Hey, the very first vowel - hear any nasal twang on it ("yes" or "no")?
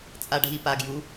no